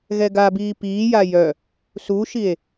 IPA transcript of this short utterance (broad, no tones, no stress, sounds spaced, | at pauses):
ɣ ɛ ɡ a b iː p iː j a j œ | s u ʃ i e̯